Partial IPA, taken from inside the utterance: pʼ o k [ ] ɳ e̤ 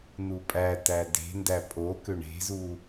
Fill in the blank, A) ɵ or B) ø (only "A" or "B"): B